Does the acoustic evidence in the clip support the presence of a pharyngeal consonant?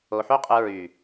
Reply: yes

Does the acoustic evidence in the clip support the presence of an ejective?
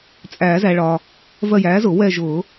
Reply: yes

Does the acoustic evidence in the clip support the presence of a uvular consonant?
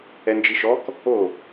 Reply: no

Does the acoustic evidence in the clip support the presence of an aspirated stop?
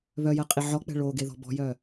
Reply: no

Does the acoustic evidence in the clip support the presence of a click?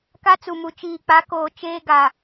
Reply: no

